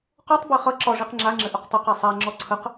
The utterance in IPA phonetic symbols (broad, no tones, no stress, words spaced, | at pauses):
qɔtˤbe χʌ ǁɒ ʐiqŋ͡ǁaŋ͡ǁɘ ʔuqtˤuqe sˤaŋ͡ǁɔ ǀʰəq